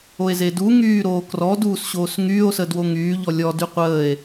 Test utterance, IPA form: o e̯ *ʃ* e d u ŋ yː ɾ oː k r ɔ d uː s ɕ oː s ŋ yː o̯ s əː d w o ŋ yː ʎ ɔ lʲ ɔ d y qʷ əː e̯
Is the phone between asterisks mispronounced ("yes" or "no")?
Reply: yes